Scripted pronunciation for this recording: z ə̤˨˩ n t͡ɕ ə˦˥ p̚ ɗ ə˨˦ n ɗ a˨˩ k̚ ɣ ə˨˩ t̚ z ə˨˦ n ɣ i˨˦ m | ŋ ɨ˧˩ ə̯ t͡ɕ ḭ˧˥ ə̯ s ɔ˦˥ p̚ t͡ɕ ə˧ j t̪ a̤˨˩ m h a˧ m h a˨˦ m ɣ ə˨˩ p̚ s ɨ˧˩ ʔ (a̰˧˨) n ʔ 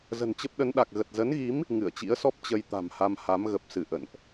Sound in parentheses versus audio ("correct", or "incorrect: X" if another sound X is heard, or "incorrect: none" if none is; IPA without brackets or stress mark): incorrect: ə̰˧˨